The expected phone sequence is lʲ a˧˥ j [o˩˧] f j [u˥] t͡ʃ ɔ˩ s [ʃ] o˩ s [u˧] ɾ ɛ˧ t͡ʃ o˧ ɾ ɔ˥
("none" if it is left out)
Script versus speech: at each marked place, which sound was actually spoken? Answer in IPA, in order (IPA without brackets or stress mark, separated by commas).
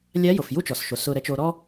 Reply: o˩, u˥, ʃ, ʊ˧